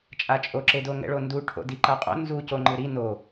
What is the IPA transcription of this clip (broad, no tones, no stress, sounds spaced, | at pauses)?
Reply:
t͡ʃʼ a t͡ʃʼ o ǁ e d o ŋ ɛ̰ ɭ o n d u ʈʰ o̰ d i ǃ a qʼ o̰ n z u c o ŋ͡ǃ ɯ ɾ i n o